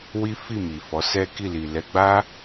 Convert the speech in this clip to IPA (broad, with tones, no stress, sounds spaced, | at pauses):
w i˦ f i˦˨ m i˨ f ɔ˨˦ s ɛ˦ k i˦˨ l i˨ l ɛ˧ ɡ͡b a˦